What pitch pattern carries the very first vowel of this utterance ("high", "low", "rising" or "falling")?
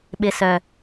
low